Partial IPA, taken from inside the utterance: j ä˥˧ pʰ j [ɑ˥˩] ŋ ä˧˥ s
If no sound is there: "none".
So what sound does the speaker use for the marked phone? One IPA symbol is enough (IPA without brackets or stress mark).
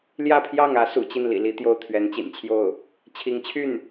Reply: ɑ˥˩